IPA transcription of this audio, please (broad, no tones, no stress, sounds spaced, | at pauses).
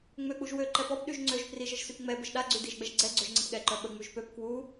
ŋ͡m ø k͡p u ʒ w ø ǃ ɛ p ɔ p ɗ y ʒ ŋ͡ǀ ø ʒ p r i ʒ ə ʒ s y p ŋ͡m ɛ b ə ʒ ɗ a ɡ͡ǀ y d i ʒ ɡ͡b ɛ ʒ ɡ͡ǀ ɛ ɡ͡ǀ ø ʒ ŋ͡ǀ ə p ɠ ɛ ǃ œ ɓ ə ŋ͡m y ʒ p ø p k w u